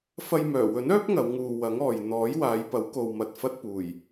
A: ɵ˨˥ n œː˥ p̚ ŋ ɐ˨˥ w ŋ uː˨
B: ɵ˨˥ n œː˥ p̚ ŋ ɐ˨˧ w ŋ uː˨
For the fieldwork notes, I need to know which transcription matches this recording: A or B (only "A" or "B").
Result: B